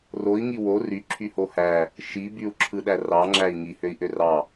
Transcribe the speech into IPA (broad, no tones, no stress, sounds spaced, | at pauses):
r o i̯ ŋ i w o r y ǁʰ y h o h æ | ʃ i b y u̯ ǁʰ ɯ ɗ æ r ɑ ŋ͡ǁ æ i̯ ŋ i h ø i̯ ʔ ø r ɑ